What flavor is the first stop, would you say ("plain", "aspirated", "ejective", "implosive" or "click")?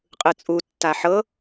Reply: ejective